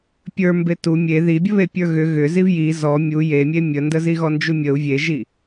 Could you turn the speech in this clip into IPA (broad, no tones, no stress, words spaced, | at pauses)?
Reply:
pʲə˞ mbetu mʲe ði bʲəβepʲə˞ɣʏ ɣʏ zivji zɔ mʲu jemʲe mʲəndə ziɣɔnd͡ʒumʲəu̯ vʲeʒi